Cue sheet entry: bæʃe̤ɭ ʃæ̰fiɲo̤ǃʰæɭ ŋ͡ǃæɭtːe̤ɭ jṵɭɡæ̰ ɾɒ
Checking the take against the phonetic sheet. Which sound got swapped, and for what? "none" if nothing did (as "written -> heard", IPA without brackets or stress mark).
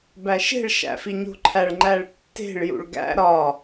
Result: none